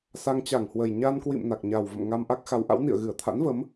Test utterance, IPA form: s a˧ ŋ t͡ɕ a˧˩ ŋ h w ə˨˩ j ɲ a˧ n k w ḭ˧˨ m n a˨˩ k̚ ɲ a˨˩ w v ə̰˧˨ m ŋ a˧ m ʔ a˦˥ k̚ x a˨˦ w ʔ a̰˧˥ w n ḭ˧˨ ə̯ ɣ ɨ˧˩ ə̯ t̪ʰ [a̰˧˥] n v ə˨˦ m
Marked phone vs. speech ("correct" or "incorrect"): correct